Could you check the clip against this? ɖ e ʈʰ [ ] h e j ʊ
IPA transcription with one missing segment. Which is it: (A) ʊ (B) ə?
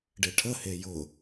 B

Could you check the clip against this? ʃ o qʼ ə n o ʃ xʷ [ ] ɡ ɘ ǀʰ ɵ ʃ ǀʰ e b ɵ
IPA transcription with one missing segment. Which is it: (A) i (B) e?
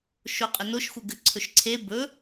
B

